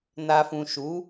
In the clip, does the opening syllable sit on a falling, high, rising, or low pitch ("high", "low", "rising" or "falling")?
low